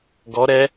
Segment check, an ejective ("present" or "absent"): absent